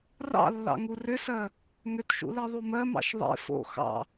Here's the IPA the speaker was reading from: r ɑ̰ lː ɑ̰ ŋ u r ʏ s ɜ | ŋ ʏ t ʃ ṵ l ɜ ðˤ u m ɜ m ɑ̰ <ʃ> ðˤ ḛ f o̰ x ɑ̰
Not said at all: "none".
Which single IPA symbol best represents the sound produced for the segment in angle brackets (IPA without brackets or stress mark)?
ʃ